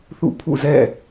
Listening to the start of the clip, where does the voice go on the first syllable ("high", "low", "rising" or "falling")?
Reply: falling